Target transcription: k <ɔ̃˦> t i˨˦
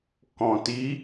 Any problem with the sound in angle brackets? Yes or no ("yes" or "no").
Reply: yes